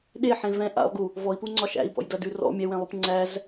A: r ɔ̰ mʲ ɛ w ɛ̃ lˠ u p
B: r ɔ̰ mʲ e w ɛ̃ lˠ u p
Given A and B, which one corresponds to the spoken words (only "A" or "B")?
A